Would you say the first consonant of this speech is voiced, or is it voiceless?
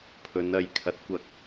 voiceless